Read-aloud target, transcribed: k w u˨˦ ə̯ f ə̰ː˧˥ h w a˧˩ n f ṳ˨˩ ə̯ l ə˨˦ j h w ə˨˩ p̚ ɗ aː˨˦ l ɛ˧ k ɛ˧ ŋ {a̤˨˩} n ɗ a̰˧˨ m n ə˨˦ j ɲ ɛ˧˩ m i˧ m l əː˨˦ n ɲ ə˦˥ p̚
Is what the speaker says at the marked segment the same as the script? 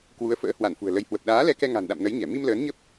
yes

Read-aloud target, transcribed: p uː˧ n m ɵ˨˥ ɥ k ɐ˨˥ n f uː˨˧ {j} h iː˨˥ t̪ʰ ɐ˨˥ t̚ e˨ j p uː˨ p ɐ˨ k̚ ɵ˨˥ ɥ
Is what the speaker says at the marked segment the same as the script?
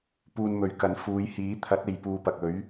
yes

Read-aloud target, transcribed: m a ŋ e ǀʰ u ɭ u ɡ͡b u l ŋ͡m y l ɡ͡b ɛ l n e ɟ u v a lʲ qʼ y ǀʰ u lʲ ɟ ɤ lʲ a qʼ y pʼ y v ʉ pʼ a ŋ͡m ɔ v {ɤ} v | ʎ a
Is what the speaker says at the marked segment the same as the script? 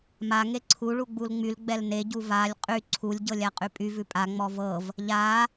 yes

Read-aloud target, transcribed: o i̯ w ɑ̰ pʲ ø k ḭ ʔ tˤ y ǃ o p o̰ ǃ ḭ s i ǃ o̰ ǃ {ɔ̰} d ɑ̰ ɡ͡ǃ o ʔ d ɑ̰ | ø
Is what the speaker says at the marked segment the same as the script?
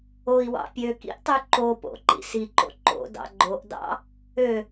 no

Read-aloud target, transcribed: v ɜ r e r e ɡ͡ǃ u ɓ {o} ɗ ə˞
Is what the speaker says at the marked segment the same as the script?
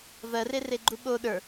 yes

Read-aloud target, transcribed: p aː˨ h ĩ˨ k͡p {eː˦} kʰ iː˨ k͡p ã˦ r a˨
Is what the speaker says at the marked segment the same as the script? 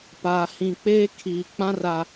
yes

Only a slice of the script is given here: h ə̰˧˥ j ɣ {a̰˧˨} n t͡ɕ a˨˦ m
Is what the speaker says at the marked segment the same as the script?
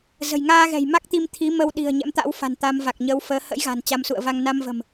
no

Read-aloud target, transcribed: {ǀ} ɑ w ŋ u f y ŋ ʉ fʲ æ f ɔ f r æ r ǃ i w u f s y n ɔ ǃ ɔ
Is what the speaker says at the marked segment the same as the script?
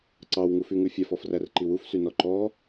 yes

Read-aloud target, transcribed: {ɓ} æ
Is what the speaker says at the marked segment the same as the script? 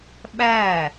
yes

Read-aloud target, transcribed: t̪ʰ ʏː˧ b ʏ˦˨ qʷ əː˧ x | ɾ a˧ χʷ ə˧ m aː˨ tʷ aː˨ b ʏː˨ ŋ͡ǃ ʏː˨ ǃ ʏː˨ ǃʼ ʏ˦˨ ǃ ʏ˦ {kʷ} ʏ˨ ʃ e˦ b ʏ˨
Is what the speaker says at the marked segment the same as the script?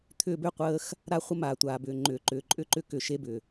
no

